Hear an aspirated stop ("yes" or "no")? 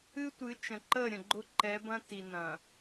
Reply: no